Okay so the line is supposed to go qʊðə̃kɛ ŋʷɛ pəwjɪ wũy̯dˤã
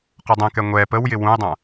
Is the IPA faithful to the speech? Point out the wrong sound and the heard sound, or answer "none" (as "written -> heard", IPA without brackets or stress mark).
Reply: ð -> dˤ